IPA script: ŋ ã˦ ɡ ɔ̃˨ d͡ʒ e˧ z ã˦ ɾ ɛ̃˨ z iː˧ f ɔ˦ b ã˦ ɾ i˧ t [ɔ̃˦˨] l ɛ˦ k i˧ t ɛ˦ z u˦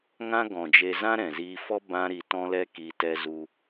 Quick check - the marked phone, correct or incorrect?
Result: incorrect